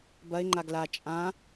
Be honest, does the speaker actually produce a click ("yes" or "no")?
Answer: yes